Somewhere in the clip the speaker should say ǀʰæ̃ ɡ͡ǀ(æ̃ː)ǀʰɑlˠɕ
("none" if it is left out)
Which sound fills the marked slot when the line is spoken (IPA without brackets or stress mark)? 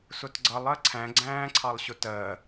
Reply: æ̃ː